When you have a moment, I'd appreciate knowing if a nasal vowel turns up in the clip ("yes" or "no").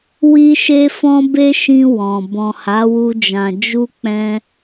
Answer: yes